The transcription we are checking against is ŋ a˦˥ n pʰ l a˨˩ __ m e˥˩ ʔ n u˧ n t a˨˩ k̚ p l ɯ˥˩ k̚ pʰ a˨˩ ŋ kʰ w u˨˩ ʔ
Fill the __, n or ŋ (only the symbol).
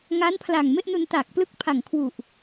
ŋ